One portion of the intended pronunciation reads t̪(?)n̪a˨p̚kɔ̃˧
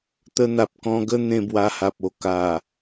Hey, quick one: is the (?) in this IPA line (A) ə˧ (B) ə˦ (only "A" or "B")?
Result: A